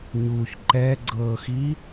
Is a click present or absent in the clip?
present